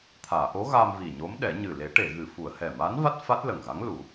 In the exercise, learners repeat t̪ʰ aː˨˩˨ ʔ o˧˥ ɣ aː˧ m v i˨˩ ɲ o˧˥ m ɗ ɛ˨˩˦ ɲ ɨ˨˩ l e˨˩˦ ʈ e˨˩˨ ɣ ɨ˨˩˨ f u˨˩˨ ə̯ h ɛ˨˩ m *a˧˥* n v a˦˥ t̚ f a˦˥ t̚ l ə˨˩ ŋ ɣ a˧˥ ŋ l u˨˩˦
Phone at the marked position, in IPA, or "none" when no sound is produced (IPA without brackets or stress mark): a˧˥